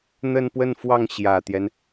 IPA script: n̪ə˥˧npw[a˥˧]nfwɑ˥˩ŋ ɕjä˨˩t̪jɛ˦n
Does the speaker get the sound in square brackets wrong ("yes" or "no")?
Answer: yes